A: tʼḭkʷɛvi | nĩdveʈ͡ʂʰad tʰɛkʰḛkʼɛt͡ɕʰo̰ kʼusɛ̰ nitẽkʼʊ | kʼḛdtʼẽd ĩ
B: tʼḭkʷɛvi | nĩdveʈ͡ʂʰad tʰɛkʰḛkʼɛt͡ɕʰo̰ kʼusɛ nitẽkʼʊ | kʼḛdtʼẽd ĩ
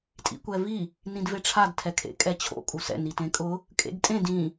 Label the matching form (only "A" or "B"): A